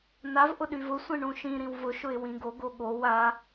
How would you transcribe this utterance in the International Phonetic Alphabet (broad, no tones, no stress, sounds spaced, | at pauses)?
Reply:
n a v ʔ ʊ ɗ y v ʊ sʷ ĩ ɳ ũ ʃ ĩ ɾ ĩ w v ʊ ʃ ʊ ɪ̯ w ĩ ɡ o ɡ o ɠ o w a